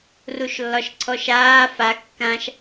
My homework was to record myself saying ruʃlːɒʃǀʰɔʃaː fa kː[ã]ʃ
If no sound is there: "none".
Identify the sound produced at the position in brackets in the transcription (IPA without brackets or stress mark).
ã